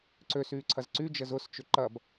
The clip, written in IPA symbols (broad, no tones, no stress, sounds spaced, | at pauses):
ǀ ø s yː ǀʰ ɐ z ǀ y d͡ʒ ə z ʊ s t͡ʃ ʏ ǃ ɐ b